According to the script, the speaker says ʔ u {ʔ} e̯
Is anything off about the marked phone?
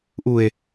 yes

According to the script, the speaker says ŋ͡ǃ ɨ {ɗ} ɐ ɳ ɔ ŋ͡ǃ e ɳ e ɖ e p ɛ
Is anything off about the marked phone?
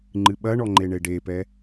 yes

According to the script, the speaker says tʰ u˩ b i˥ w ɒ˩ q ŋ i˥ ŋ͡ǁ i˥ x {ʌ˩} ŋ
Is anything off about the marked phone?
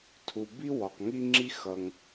no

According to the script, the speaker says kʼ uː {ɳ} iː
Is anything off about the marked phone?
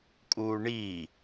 no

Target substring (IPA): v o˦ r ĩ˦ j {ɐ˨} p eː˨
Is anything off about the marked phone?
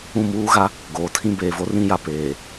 yes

